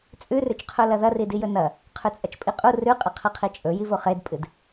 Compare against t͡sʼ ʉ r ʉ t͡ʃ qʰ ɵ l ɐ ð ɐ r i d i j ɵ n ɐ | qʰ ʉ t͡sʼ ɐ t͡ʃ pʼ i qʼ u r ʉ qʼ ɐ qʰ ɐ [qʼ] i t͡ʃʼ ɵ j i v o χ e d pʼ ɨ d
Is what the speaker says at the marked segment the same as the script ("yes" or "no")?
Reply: no